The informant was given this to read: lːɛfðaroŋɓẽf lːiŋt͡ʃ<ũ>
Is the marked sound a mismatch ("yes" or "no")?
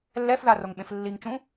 no